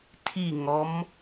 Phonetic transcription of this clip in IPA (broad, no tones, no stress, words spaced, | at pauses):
tʰiŋɔm